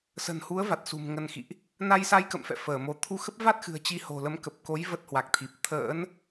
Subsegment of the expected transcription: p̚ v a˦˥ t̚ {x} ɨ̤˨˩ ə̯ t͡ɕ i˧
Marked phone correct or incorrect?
correct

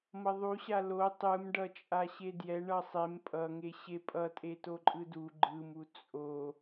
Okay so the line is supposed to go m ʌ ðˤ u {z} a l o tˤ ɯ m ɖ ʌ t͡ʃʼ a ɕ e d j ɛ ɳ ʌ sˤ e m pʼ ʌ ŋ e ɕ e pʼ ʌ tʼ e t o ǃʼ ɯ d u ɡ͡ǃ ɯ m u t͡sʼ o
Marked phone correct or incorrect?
incorrect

